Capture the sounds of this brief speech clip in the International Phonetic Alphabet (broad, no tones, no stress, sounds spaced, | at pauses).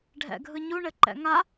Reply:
ɖʱ ɛ̰ ɡʱ ɯ ɲ u ɳ ɘ ǃ ɛ̰ ŋ a